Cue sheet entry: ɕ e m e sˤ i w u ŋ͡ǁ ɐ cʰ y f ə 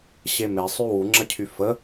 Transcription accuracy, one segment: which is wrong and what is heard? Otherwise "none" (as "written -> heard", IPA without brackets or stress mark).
i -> y